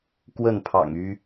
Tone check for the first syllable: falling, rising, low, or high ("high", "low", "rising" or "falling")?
falling